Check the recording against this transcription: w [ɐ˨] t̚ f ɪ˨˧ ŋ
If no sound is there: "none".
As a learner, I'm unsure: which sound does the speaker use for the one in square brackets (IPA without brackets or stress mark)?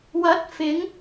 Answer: ɐ˨˥